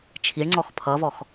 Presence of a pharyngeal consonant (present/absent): absent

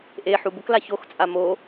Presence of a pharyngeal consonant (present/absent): present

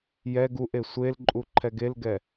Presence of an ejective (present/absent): present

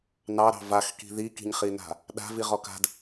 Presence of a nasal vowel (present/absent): absent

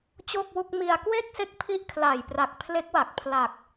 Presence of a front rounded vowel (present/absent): absent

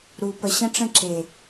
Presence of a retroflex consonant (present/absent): present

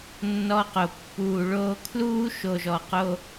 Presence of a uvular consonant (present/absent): present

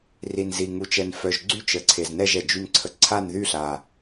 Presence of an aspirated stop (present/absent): present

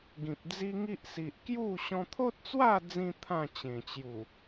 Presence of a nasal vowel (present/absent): present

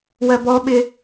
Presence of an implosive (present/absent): present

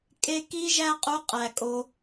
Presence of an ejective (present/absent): present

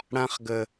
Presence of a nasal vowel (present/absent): present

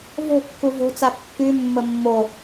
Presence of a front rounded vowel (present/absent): present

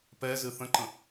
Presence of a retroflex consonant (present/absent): absent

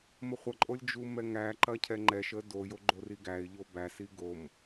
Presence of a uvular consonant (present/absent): present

